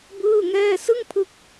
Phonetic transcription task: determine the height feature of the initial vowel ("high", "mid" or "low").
high